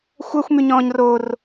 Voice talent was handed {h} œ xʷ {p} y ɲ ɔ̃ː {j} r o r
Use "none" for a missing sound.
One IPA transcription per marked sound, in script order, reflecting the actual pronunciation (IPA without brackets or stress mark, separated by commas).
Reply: xʷ, m, ɲ